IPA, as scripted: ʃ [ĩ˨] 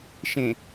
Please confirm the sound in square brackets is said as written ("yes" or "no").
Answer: no